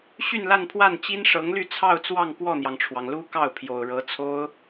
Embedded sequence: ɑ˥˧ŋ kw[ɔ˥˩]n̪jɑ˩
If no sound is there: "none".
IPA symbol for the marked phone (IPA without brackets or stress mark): ɔ˥˩